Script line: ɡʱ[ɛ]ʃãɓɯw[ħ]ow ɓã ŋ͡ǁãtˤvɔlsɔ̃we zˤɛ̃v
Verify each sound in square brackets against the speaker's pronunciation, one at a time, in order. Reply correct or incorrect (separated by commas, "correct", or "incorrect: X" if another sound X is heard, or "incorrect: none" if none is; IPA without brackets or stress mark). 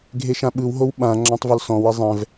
incorrect: e, incorrect: ɦ